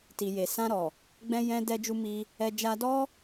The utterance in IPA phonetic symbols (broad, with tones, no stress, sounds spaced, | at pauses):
t i˨ j e˨ s ã˧ ɾ ɔ˨ | ɡ͡b ɛ̃˧ j ɛ̃˧ d ɛ˧ d͡ʒ u˧ m i˧ | ɛ˧ d͡ʒ a˧ d ɔ˦